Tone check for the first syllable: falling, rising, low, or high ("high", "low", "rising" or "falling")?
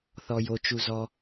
low